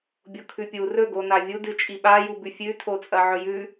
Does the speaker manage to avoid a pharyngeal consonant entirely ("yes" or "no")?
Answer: no